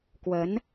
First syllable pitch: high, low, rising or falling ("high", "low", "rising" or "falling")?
rising